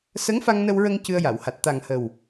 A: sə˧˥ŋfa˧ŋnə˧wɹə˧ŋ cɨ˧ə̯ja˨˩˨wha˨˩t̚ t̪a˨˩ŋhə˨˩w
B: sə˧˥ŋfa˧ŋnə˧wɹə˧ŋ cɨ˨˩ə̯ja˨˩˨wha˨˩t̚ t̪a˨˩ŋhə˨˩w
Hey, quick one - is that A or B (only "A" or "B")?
A